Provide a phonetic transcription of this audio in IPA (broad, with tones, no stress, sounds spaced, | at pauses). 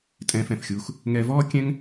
tʼ ɛ̃ː˧ f ɛ̃˩ f xʲ uː˧ x | ŋ ɛ˧ v ɔː˥ kʲ ɛ̃˥ ŋ